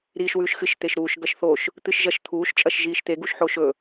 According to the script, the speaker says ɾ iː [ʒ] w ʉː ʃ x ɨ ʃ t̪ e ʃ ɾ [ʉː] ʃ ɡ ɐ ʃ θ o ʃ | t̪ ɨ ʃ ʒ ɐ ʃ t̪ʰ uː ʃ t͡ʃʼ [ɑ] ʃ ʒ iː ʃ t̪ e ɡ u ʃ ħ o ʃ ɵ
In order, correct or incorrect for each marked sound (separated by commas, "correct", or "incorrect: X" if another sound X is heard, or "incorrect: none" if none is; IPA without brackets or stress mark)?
incorrect: ʃ, incorrect: uː, incorrect: ɐ